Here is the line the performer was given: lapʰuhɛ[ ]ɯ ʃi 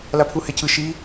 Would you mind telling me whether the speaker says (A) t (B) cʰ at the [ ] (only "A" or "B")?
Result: B